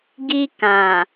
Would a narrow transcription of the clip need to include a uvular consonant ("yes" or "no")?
no